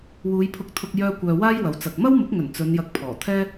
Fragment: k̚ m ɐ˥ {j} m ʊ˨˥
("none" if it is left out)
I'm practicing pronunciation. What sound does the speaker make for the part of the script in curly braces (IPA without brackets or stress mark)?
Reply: w